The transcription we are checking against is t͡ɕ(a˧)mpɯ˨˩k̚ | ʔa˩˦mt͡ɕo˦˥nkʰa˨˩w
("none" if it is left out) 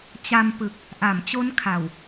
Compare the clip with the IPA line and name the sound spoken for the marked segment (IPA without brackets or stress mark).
a˧